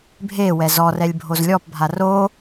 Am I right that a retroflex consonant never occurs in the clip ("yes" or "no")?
yes